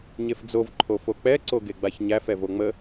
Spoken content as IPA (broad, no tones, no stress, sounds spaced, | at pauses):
ɲ e f d͡z o v ǃʰ o f o k͡p ɛ ǀ o ɡ e ɡ͡b a ç ɲ æ f ɛ v o ŋ͡m ə